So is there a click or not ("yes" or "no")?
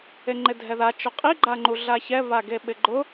yes